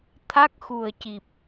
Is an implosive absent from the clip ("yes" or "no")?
yes